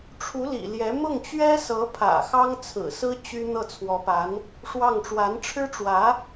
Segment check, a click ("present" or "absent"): absent